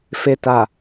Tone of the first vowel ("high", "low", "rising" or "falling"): low